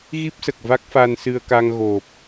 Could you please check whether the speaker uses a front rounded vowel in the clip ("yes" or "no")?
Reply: no